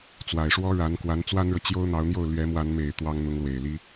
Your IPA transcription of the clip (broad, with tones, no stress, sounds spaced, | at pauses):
t͡s w a˨˩ ɪ̯ ʂ w ɔ˥ ɻ a˧˥ n k w a˧˥ n t͡s w a˥ n ɻ ɤ˨ t͡ɕ j o˥ ʊ̯ n̪ ɑ˧˥ ʊ̯ n̪ j o˥˩ ʊ̯ l ɥ ɛ˧˥ m w a˧˥ n m e˨˩ ɪ̯ t̪ w ɑ˥ ŋ n̪ ʊ˧˥ ŋ l w e˨˩ ɪ̯ l i˥